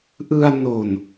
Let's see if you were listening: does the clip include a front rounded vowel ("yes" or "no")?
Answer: no